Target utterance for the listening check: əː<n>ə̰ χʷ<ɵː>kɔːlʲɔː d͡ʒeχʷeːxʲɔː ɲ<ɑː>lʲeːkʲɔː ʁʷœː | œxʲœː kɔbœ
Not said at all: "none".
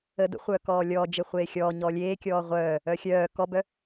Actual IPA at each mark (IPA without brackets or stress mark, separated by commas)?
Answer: d, œː, ɔː